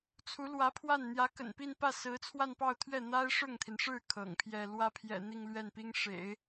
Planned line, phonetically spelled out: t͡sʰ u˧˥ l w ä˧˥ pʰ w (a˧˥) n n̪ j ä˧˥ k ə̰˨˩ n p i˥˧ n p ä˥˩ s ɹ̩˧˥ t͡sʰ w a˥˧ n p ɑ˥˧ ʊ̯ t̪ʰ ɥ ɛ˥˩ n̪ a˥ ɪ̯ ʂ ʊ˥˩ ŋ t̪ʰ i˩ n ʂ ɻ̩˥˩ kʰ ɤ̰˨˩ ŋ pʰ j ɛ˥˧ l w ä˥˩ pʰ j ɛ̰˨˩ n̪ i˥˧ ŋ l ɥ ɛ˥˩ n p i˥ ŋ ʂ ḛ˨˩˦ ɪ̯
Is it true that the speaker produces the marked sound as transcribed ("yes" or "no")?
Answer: no